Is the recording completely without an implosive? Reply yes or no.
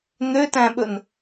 no